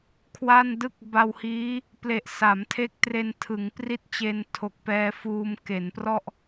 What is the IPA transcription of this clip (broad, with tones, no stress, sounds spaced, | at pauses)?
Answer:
kʰ w a˥˩ n d ɯ˥˩ k̚ b a˧ w h iː˦˥ | p l e˨˩ ʔ s a˩˦ m tʰ e˦˥ k̚ t r e˧ n tʰ ɯ˩˦ ŋ p r i˥˩ t̚ t͡ɕ e˧ n tʰ o˨˩ k̚ p ɛː˧ f uː˧ m k e˩˦ n p r ɔ˥˩ ʔ